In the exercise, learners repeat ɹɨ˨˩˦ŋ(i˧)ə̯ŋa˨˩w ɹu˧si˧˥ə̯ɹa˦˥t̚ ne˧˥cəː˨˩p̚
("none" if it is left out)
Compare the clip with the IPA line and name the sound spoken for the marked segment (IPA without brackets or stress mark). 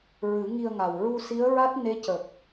i˧